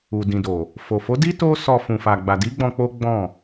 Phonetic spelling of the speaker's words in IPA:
u˨ d ĩ˨ d o˨ | f o˨ f o˨˦ d i˦ t o˦ s ɔ˧ f ũ˧ f a˧ ɡ͡b a˨ d i˨˦ ɡ͡b ɔ̃˧ k͡p o˦ ɡ͡b ɔ̃˦˨

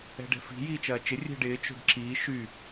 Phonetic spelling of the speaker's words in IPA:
ɛ̤ ɖ ɛ̤ f i̤ j iː t͡ʃ ɐː t͡ʃ ɪ rʲ ɛ̤ ɖ ɪː t͡ʃ o̤ ɖ ǁ iː ʃ y

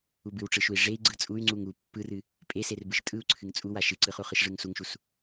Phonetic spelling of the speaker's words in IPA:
u b ɨ w ʈ͡ʂ ɯ ʃ u i̯ ʐ e i̯ ɡ͡ǀ ɯ t͡sʼ u y̯ ŋ͡ǀ u ŋ u pː ɯ r ɨ | pʼ e s e r b ɯ ʃ tʼ ɯ u̯ ǀʰ ɨ ŋ t͡sʼ u w a ʃ ɨ ǀ ɯ χ u χ ɯ ʃ ʐ ɯ ŋ s u ŋ ʃ u s

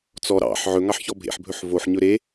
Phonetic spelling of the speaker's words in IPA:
t͡s ɔ ɾ ɑ̰ ħ ʕ ɵ ŋ ɑ ħ ç ɔ bʱ ḛ ħ bʱ ɵ ħ v o ħ ɲ ɵ ɾ e

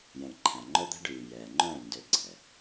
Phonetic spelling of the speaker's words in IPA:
j ɛ̃˨ ɳ ǃʰ æ̃˨ ŋ͡ǃ œ˦ d̪ æ̤˦ ɖ ʉː˨ j ɛː˨ ŋ͡ǃ œ̃ː˦˨ n d ø˧ ɡ͡ǀ ɛ˨

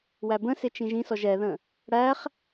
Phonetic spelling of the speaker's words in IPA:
w æ b ə̃ s ɪ t͡ʃ ĩ ʒ ĩ s ɔ ʒ ɛ ð ə̃ | ɽ æ χ

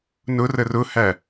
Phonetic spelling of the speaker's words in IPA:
n ʊ r ə r ʊ h æ

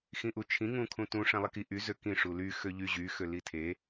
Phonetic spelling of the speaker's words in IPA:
x ĩ ʔ u t͡ʃʰ ĩ ŋ ũ kʰ ũ t ũ ʂ ɛ̃ lˠ i k i ʔ y z ø k ĩ ʂ u l y x ø ʎ y ʑ y x ø l i tʰ e

